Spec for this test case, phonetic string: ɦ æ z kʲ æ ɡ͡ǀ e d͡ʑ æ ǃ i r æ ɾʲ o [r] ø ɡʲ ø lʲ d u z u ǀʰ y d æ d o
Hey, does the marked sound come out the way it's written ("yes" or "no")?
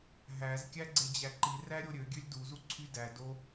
no